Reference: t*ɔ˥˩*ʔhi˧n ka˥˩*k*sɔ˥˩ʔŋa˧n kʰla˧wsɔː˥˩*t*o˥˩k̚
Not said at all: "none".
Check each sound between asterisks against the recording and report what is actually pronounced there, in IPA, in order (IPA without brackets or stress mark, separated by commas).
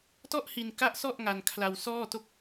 ɔ˥˩, ʔ, t